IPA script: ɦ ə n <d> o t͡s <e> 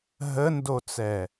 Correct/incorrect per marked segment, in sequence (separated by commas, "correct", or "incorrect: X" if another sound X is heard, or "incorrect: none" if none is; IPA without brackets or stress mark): correct, incorrect: ɛ